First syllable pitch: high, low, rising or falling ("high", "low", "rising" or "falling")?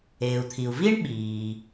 low